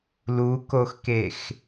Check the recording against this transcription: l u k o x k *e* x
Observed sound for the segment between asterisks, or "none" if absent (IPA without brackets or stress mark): e